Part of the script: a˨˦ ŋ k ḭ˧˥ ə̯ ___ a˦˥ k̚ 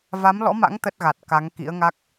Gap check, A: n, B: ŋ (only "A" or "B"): B